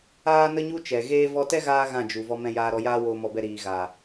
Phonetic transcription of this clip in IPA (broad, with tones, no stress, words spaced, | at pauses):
aː˦nə˦ɲu˦ t͡ʃɛ˨ɣeː˦ vɔ˧tɛ˦ɣaː˧ ɣã˦˨d͡ʒu˨ vɔ˧mɛ̃˧jaː˧ɾɔ˧ jaː˦woː˧mɔ˧bɛ˧ ɾiː˨ɣa˨